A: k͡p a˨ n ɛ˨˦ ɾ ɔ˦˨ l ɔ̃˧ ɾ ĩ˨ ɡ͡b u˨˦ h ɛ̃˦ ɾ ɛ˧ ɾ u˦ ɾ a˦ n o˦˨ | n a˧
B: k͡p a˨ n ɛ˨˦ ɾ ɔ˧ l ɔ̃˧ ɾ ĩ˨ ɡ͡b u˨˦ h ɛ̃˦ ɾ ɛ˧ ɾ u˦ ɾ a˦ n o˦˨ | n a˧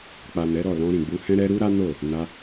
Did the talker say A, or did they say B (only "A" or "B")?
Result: A